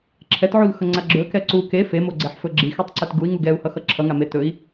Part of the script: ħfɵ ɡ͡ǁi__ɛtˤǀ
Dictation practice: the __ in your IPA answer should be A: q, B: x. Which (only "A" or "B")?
B